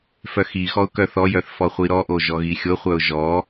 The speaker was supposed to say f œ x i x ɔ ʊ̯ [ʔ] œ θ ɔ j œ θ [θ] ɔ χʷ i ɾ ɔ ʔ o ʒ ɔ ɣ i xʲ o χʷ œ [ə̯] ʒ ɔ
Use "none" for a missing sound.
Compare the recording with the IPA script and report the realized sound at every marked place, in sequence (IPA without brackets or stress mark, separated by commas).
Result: k, f, ʊ̯